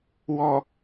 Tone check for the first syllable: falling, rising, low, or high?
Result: low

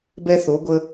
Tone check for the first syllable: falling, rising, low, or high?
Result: high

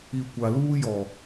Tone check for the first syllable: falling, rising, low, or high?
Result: low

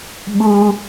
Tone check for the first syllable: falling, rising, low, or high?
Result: low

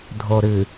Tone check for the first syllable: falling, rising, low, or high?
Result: low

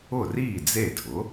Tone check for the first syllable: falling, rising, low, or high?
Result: falling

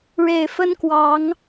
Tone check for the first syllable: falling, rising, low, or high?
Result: low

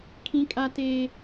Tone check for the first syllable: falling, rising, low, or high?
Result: high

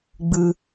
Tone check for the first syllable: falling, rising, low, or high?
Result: high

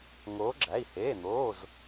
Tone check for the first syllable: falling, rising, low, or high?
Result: rising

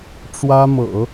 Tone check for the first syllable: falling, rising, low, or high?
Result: high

